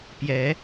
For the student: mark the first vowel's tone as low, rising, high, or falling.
rising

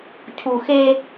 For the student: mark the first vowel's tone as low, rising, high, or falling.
low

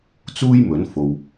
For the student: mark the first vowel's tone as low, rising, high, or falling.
high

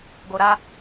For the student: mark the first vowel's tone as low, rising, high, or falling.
low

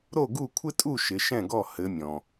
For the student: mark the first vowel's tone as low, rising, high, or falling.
falling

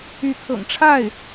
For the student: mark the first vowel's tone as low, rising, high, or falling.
rising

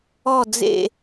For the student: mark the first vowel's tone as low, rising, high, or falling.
falling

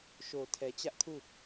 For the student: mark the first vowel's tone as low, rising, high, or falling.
low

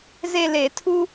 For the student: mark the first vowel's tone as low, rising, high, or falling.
falling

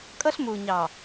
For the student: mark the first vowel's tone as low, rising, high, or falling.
high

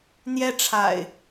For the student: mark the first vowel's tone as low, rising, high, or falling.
high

